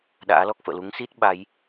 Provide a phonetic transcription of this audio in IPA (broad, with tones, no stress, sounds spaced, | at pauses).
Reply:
ɗ a̰ː˧˥ l ɔ˦˥ k̚ f ə̰ː˧˨ l u˨˦ ŋ s i˦˥ t̚ ɓ a˨˦ j